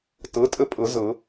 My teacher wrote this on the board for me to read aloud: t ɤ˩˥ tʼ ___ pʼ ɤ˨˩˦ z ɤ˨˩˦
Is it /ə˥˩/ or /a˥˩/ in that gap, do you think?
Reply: ə˥˩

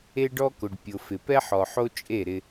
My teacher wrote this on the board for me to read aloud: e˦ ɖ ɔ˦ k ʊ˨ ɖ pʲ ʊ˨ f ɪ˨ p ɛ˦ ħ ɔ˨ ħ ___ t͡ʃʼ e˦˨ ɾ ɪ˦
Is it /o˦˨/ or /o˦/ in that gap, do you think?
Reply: o˦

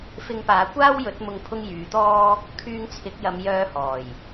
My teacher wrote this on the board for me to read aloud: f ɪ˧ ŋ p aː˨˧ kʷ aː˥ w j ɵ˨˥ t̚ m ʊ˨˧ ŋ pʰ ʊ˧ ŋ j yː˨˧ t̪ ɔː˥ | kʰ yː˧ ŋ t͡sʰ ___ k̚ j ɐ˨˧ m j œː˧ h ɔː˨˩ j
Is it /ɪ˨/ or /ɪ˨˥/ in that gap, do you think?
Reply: ɪ˨˥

